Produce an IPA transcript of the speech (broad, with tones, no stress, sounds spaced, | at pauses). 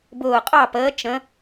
b ʊː˧˩ qʼ ɑ˥˨ p əː˨˥ t͡ʃ ə̃˨˥